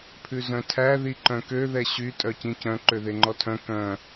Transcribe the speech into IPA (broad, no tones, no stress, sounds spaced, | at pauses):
pʰ ʉ z œ̃ tʰ æ ð i ǃ œ̃ k ø ð ɛ ɕ y tʼ œ c ĩ c œ̃ ǃ ø ð e ŋ͡ǃ ɔ tʰ œ̃ k œ̃